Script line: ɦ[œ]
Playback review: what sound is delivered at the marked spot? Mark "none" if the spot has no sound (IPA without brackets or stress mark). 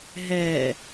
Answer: ɛ